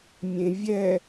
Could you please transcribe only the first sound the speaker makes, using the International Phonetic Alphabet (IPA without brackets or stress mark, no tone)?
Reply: mʲ